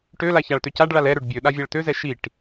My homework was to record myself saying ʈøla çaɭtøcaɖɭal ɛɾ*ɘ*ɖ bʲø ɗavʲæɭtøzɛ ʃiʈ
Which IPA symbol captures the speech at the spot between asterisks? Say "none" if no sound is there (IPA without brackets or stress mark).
ø